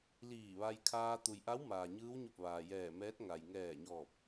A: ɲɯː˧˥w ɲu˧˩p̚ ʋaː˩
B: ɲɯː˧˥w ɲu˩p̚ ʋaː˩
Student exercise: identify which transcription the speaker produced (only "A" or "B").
A